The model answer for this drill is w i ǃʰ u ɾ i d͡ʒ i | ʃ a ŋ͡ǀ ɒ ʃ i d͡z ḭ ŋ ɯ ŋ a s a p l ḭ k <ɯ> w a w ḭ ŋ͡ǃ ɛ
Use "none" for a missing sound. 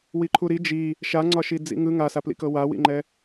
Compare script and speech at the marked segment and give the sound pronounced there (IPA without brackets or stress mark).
ɤ